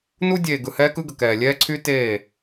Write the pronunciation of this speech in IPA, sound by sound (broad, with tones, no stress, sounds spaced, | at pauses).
n u˦ dʲ eː˨ ɡ ɯ˨ h ɛː˦ k ɯ˦ ɡ ə˨ k ɛː˨ lʲ ɛː˦ ǀʰ y˦ t eː˦˨